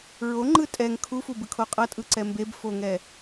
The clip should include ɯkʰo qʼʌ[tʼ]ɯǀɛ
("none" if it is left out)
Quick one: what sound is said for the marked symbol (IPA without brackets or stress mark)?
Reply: tʼ